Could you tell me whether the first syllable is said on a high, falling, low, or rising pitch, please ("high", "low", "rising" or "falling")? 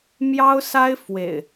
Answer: high